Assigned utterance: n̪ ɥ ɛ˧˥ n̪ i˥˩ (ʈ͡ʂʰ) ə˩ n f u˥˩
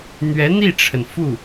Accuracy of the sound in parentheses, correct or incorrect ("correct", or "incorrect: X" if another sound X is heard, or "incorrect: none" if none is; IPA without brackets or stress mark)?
correct